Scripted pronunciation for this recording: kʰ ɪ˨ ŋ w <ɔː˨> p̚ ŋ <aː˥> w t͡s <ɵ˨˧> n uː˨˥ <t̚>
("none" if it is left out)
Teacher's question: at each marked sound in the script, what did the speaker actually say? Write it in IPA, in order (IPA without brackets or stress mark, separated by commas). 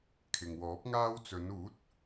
ɔː˨˥, aː˥, ɵ˨˧, t̚